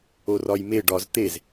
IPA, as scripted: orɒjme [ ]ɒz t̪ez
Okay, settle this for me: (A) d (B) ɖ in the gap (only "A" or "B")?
B